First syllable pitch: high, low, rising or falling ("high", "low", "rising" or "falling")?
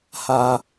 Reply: low